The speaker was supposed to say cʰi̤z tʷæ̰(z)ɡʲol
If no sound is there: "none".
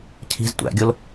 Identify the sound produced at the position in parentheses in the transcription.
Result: none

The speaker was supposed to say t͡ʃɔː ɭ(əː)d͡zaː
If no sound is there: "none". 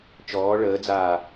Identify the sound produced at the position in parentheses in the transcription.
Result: əː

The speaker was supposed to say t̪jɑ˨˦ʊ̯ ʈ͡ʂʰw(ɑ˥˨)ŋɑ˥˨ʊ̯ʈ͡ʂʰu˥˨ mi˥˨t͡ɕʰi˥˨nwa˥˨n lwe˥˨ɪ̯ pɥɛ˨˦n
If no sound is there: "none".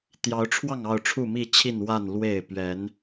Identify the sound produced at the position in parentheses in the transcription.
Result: ɑ˥˨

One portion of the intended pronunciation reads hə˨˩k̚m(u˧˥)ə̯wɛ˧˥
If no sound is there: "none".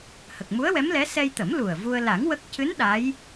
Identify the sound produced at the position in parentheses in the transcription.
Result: u˧˥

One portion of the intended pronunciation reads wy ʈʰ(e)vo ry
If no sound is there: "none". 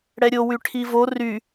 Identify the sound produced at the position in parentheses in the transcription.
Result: i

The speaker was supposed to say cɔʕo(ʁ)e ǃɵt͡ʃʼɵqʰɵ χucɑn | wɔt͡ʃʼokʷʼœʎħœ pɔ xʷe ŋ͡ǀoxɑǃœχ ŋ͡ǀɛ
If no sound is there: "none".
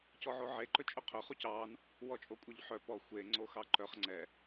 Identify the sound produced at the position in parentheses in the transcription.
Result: ʕ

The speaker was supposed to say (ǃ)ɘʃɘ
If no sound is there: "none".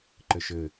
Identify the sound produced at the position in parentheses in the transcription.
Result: ǃ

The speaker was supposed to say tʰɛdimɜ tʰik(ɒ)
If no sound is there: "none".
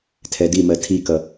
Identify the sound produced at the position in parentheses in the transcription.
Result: ʌ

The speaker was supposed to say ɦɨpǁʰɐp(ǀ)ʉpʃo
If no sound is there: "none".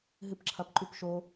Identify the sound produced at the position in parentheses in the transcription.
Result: ǃ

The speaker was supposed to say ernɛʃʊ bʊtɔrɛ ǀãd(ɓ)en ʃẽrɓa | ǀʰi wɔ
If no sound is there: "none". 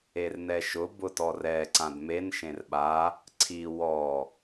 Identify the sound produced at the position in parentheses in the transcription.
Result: m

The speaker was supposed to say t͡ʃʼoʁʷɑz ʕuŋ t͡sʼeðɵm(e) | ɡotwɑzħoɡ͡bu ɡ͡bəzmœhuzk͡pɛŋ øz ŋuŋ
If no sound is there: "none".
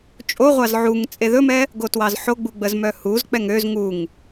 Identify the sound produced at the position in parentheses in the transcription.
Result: ɛ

